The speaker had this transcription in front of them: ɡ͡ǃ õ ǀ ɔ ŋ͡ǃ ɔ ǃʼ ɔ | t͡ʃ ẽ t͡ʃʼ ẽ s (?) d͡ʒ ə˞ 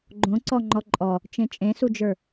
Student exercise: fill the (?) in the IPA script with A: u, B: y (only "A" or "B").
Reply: A